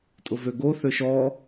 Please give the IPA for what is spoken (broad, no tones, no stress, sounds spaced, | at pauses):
tʼ ʊ v ø ɡ o θ ø ʃ ɔ